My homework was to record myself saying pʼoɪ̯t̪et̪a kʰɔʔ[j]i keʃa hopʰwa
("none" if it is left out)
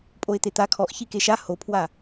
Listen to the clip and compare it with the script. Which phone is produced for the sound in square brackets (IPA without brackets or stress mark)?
ç